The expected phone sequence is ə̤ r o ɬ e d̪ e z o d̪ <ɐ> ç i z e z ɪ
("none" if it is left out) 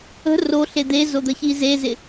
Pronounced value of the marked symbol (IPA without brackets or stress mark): ə